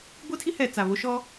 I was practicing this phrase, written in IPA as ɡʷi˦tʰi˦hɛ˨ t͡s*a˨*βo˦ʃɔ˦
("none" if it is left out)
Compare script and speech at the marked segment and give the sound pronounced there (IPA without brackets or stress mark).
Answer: a˨